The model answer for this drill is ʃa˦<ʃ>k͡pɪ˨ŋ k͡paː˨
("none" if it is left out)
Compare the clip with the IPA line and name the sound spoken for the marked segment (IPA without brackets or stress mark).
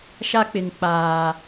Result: none